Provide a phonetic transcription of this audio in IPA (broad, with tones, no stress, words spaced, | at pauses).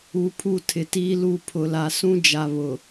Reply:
u˨ pʰu˦˨tʰɪ˨tiː˦lu˦˨ pʰʊ˨la˨ sũ˦ d͡ʒa˨βʊ˨